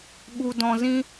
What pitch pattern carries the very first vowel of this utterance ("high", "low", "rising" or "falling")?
low